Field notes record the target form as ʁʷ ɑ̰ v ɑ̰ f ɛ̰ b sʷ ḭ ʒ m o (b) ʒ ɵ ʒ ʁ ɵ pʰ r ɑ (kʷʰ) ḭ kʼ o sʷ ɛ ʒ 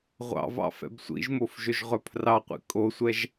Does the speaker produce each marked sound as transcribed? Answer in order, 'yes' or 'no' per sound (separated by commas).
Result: no, no